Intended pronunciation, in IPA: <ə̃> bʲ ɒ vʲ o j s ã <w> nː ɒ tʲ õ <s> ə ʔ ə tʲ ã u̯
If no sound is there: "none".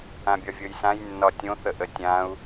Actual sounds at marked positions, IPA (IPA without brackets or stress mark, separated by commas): ã, j, θ